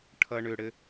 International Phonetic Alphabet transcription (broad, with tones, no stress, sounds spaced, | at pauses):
ʈʰ ʌ˥ ɳ ʏ˥ ɽ ɘ˥